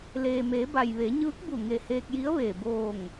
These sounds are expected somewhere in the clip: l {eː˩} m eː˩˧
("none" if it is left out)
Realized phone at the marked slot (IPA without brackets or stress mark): eː˩